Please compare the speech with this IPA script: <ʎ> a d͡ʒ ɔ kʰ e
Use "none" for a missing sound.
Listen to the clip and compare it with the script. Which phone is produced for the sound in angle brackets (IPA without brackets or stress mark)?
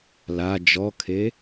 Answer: l